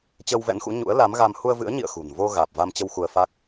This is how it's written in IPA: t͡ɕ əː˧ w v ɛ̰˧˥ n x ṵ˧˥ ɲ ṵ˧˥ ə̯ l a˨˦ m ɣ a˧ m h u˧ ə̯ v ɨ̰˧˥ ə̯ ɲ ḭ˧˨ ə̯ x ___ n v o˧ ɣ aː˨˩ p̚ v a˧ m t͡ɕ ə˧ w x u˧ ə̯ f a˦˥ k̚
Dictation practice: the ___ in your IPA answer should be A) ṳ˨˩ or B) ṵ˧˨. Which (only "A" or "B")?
A